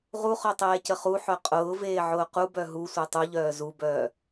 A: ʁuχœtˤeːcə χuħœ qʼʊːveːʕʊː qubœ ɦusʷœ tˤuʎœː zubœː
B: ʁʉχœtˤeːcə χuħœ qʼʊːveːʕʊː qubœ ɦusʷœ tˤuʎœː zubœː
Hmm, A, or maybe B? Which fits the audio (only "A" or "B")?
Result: A